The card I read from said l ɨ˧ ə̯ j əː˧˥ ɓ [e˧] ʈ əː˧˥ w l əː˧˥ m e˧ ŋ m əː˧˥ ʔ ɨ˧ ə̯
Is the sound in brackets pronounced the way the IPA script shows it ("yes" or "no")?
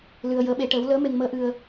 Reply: no